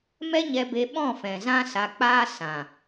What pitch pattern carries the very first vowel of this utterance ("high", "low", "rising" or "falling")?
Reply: high